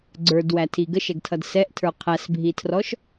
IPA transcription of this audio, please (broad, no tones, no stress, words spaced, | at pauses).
ɡ͡ǀə˞dwætʰi ɡəʃɛɡtʰʌd sɛʔtʰə˞ qʰæsbʱitʰrɔʃ